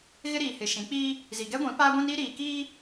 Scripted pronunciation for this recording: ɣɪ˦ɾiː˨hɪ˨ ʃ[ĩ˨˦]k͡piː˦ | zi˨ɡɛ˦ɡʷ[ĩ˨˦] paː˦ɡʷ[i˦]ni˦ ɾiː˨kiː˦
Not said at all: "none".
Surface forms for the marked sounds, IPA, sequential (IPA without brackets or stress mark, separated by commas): ĩ˨˦, ĩ˨˦, ĩ˦